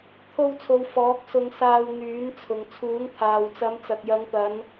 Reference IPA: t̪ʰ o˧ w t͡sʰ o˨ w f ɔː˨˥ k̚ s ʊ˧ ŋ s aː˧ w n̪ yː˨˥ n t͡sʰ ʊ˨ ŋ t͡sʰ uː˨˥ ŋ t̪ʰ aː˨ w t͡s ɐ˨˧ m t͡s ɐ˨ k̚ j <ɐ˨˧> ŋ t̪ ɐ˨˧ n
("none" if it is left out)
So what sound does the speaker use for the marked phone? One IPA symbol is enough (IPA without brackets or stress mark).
ɐ˨˧